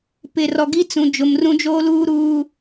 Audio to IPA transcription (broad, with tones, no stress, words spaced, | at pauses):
pɪ˨rɔ˨ɡi˦t͡sũ˨ d͡ʒʊ˨mrũ˦d͡ʒoː˦luː˦ ɾuː˦